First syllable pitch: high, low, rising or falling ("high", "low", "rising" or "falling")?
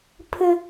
high